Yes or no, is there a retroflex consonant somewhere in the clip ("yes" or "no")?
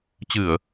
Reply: no